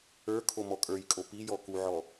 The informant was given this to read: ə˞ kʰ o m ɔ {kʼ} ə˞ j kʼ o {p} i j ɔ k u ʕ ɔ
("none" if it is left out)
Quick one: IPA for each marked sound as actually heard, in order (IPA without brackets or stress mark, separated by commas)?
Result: kʼ, p